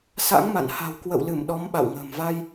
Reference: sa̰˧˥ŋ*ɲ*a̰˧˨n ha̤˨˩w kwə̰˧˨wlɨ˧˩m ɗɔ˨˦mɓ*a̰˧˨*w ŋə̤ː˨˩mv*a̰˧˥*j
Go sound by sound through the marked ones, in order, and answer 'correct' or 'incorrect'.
incorrect, correct, incorrect

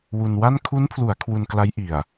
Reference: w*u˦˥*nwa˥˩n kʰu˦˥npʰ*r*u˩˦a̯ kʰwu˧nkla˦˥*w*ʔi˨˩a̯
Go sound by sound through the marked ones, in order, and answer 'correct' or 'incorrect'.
incorrect, incorrect, incorrect

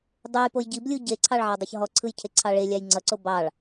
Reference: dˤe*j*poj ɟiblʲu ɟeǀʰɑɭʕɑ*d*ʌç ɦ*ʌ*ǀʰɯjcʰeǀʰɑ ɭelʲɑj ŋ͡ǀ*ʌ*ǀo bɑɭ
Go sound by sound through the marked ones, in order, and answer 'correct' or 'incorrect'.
correct, incorrect, incorrect, correct

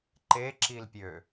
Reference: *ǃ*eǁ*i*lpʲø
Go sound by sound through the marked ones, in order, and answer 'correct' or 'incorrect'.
correct, correct

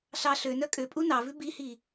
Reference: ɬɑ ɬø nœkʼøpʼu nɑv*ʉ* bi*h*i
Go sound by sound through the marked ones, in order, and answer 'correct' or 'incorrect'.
correct, correct

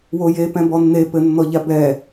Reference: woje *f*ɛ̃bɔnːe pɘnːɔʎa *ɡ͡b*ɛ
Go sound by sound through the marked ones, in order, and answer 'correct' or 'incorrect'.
incorrect, incorrect

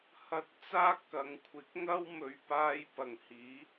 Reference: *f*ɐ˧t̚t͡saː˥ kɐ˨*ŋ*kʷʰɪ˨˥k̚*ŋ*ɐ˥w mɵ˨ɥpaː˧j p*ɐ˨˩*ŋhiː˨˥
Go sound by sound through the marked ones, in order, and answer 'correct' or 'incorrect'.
incorrect, correct, correct, correct

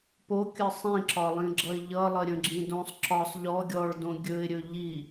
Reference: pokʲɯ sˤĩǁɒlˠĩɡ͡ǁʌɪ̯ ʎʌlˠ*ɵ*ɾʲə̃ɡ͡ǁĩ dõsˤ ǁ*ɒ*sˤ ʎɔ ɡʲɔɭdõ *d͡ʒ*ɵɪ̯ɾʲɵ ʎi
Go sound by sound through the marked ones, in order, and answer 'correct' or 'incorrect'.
incorrect, correct, incorrect

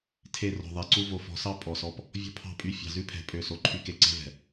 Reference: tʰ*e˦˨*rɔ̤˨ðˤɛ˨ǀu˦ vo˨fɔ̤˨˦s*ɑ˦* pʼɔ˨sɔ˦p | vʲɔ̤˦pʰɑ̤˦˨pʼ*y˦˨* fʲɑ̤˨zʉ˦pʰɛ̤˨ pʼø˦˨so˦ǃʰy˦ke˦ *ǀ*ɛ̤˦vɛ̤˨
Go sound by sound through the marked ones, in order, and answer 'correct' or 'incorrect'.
correct, correct, correct, correct

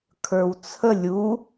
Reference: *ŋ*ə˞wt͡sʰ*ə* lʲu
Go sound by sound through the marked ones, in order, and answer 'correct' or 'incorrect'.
incorrect, correct

